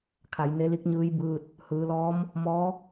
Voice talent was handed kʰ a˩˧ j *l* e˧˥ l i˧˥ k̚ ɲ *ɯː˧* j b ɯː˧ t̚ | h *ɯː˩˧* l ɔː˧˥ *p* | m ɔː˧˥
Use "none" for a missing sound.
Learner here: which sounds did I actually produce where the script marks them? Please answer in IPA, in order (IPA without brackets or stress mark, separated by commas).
n, ɯː˧˥, ɯː˩˧, m